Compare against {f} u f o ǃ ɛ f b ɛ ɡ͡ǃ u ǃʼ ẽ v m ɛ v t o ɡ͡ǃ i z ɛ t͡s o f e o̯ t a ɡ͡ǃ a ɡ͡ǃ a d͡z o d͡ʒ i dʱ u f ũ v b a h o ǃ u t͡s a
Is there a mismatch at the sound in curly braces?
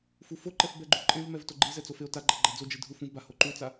no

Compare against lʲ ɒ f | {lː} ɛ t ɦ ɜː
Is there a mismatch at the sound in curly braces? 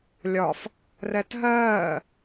yes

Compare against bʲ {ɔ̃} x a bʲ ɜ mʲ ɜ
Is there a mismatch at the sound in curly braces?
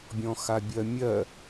no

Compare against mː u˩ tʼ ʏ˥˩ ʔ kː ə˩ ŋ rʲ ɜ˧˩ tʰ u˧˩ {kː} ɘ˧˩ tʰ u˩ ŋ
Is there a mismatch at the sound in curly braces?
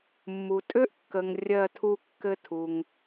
no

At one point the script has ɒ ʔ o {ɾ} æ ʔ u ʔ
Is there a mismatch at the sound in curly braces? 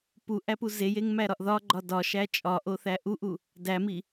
yes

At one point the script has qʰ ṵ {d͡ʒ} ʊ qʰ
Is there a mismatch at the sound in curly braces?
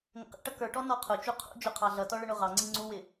no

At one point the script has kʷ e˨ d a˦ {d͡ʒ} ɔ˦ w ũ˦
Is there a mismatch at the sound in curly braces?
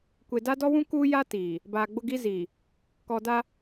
yes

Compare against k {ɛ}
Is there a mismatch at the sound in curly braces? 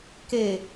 yes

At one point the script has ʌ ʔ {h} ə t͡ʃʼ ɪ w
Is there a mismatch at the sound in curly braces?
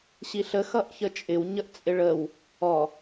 yes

